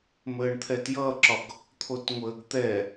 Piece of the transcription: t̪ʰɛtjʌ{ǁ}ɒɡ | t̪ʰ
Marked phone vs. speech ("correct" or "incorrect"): correct